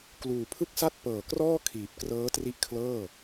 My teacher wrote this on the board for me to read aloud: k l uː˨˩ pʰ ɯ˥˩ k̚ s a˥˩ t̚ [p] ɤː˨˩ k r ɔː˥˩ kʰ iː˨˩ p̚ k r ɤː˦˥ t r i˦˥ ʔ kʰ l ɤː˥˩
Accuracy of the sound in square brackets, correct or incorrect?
correct